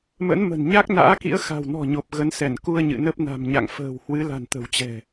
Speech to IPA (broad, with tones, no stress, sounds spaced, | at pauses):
m ə̰˧˥ n m ə̤˨˩ n ɲ a˦˥ k̚ n a̰ː˧˥ k ḭ˧˥ ə̯ x a̤˨˩ w n ɔ̤˨˩ ɲ o˨˩ p̚ ɣ ə˨˦ n s ɛ˧˩ n k u˧ ə̯ ɲ ɨ̰˧˨ n ə˦˥ p̚ n a̤˨˩ m ɲ a̰˧˨ ŋ f ə̤ː˨˩ w h w ɨ˨˦ l a̤˨˩ n t̪ ə̤˨˩ w t͡ɕ ɛ̤˨˩